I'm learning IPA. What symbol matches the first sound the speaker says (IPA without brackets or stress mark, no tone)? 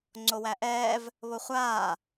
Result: ŋ͡ǀ